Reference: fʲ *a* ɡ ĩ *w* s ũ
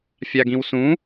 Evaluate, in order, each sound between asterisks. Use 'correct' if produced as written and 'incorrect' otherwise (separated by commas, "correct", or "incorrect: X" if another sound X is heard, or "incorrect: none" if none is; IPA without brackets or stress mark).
correct, correct